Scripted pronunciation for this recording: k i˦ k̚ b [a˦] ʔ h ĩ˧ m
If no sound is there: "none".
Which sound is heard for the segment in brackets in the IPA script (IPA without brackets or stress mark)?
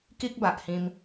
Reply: a˨